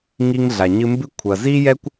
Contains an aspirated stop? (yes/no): yes